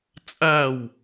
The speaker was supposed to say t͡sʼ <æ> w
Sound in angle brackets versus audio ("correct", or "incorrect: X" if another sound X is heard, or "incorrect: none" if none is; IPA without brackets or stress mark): correct